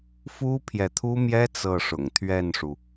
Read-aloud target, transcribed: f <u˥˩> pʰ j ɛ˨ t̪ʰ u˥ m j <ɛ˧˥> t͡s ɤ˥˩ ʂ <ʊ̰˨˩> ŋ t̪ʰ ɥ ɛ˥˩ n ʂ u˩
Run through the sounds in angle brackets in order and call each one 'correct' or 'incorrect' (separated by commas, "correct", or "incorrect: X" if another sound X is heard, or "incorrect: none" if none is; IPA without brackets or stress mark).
incorrect: u˥, incorrect: ɛ˥, correct